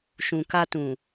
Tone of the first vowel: low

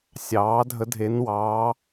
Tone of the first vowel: rising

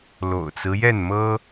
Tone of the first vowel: low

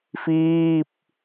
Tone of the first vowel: falling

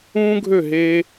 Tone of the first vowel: high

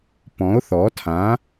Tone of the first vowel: rising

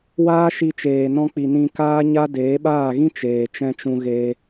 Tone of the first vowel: high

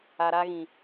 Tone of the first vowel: low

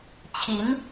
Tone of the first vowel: rising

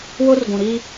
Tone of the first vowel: high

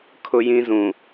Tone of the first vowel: high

